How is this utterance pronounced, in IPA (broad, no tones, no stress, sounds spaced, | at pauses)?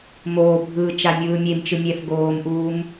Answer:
m oː bʱ ɯː t͡ʃ a mʲ ɯː mʲ e m t͡ʃ ɯ mʲ ɛ f ɡ oː m ʔ uː m